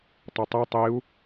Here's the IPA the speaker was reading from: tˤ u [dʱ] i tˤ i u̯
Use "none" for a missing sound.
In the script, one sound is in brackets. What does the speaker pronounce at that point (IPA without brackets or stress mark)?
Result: tˤ